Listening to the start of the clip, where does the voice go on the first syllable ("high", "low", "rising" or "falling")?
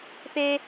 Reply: high